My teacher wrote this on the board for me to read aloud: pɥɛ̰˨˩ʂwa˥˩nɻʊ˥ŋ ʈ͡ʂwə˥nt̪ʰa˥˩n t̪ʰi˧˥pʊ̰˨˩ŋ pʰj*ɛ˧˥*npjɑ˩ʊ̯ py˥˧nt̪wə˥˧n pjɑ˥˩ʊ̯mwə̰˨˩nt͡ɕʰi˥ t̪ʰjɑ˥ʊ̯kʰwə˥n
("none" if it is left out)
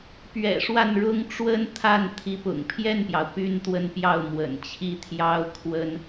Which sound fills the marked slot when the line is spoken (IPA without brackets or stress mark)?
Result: ɛ˥˩